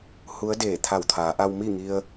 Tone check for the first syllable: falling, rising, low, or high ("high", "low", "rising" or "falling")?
rising